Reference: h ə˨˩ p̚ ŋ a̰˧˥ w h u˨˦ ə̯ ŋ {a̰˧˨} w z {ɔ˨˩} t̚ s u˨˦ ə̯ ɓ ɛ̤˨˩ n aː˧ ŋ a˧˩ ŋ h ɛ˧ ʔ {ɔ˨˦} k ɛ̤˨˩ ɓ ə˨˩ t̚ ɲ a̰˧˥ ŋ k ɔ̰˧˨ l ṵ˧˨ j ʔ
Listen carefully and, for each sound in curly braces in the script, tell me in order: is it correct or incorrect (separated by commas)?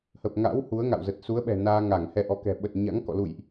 correct, incorrect, correct